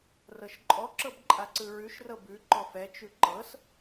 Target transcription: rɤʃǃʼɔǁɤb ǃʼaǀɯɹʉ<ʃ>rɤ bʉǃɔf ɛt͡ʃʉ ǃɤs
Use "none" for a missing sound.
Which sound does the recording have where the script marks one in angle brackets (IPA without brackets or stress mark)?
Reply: ʃ